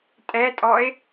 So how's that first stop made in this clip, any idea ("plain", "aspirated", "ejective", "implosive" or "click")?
ejective